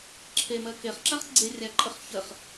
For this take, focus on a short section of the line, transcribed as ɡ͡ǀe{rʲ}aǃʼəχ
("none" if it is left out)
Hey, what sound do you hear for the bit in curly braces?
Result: rʲ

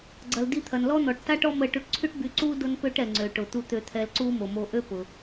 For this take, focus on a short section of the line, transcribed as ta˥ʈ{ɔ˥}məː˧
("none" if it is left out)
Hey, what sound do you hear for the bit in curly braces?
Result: ɔ˥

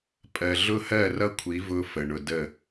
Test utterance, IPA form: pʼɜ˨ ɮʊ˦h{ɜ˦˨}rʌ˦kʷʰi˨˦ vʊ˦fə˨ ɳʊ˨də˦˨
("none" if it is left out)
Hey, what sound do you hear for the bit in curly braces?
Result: ɜ˦˨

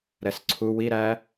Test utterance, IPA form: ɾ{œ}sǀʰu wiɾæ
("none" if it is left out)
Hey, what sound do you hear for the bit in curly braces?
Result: ɛ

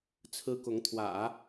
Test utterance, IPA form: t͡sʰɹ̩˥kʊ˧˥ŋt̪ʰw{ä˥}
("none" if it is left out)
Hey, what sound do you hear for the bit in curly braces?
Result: ä̰˨˩˦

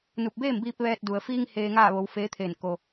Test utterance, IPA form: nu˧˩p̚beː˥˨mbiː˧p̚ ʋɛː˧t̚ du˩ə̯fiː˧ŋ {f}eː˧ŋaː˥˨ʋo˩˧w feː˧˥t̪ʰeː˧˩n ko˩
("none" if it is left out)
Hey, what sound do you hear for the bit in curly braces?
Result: h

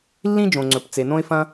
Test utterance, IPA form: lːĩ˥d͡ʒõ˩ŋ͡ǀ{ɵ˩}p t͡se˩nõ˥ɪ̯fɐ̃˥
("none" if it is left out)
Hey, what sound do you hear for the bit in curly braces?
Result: ɵ˩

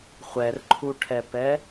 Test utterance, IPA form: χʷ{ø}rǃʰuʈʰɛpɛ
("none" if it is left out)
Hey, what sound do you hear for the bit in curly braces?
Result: ɛ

